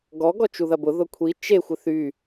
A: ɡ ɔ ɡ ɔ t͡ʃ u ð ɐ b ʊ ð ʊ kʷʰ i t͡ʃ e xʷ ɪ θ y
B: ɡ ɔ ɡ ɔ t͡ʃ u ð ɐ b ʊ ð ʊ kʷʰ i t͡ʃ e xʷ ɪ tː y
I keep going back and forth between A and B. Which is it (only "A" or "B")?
A